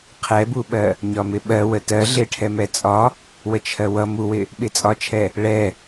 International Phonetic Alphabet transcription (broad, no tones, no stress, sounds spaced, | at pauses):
qʰ ɛ b u ɓ ɜ | ɲ ɒ m ɪ ɓ ɜ w ə t ɜ ɮ ɪ ʈʰ ɛ m ɛ t͡sʼ ɒ | w ə t͡ʃʰ ɜ w ʌ m u w ɪ | ɓ ɪ t͡sʼ ɒ t͡ʃʰ ɛ | ɭ ɛ